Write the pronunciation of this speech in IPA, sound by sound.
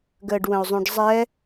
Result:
ɡ əː ɖ w ə̃ o̯ zˤ ũ ɖ zˤ ɛ

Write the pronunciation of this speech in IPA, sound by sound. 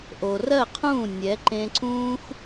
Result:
ʔ o˨ r ɜ˦˨ qʰ ũː˦˨ nʲ ɛ˨˦ ǃ ẽ˧ ǀ ũː˦ x

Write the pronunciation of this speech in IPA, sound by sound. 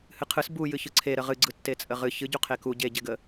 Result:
h ɨ qʰ ɯ s b u j ɨ ç ɯ ǀʰ e ɾ ə ʁ ɨ ɡ͡ǀ ɯ tː e t͡sʼ ə ʁ ɨ ç ɨ ɟ u qʰ e k u ɟ e ɟ e ɡ ə

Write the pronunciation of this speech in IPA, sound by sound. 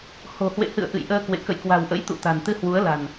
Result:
h o̤˨˩ h w ḛ˧˨ h ɨ̰˧˨ ə̯ ʔ ɨ̰˧˨ j ʔ əː˧ k w ḛ˧˨ k ə̰˧˨ j k w a̤˨˩ w ʔ ə̰˧˥ j t̪ ṵ˧˨ t̪ a̤˨˩ n t̪ ɨ˧ h w u˨˦ ə̯ l a̤˨˩ n

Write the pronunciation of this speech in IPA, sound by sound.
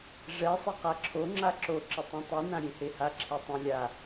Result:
ʐ ɛ sˤ e q a ǁʰ o ŋ͡ǁ a ǁ o ǁ ɪ tˤ ẽ tˤ i n ã ɾʲ ẽ h e h a ǁʰ e tˤ ẽ lʲ a

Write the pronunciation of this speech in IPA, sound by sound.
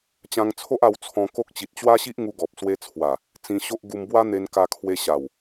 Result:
t͡ɕ ã˧ ŋ t͡sʰ o˦ ʔ a˧ w t͡sʰ ɔ̃˧ k o˦ k̚ t͡ɕ i˨ t̚ t͡ɕ w a˦ ɕ i˦ ʔ ŋ u˧ ɡ ɔ˨ p̚ s w e˧ t͡sʰ w a˨˩ | t͡s ĩ˧ ɕ o˦ ʔ ɡ u˧ m b w a˦ n̪ e˧ n k a˧ kʰ w e˧ ɕ a˨˩ w

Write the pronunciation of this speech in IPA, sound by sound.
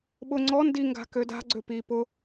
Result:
ɓ ʊ ŋ͡ǀ ɔ n d i ŋ ɡ a̤ k ø d a̤ ɡ͡ǀ ø p i p ʊ

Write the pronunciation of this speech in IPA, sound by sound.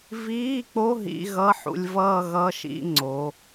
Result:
v iː˧˥˧ k͡p o˧˥˧ ɦ ḭ˧˥˧ ɣ ʌ˧˥˧ ħ ṵ˧ lʲ v ʌː˥˧ ɣ ʌ˧˥˧ ʃ ḭ˥˧ ŋ͡ǀ o˩˧

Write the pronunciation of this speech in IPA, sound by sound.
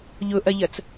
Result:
ʎ ʊ ʔ ɐ ʎ ɐ t͡s

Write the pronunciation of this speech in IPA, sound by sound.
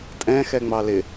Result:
tʼ ɛ̃ x ɛ ŋ͡m ɑ l ɪ

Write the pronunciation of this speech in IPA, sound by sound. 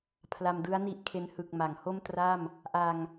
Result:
pʰ l a˧ m d ɯ˦˥ a̯ n i˦˥ ʔ kʰ e˦˥ n h ɯ˨˩ k̚ m a˩˦ ŋ h o˥˩ m t r a˥˩ m | ʔ a˧ ŋ

